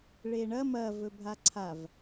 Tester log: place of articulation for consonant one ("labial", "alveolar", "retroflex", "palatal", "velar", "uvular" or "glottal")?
retroflex